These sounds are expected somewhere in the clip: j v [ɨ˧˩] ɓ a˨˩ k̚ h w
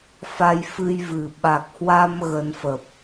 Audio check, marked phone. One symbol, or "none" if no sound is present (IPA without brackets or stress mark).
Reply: ɨ˨˩